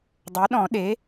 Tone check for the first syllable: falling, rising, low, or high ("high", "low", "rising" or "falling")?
rising